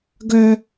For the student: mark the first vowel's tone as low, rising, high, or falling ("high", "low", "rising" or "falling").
high